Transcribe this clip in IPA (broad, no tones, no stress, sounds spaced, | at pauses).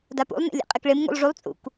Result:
d a p ṵ lˠ n ḛ lʲ ḛ qʼ ɪ k ɭ ɪ m ŋ ṵ lˠ ʐ u lˠ t͡sʼ ṵ k